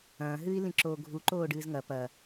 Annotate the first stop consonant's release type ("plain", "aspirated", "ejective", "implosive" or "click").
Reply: click